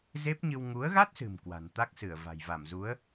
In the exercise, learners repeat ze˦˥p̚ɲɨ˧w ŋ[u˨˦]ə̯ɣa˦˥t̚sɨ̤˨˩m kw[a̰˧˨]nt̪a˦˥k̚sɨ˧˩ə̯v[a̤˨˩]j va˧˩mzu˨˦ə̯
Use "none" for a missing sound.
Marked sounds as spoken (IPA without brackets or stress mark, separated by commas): u˨˦, a̤˨˩, a̤˨˩